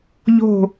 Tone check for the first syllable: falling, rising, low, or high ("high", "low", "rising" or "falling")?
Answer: falling